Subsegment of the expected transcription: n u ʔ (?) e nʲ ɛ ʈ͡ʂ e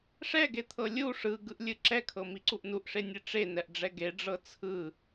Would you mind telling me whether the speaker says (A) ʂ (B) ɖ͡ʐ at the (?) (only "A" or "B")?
A